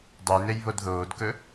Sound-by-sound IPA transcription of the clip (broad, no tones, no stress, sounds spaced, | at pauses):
dˤ ɵ j n e j β o d ð oː d k ɵ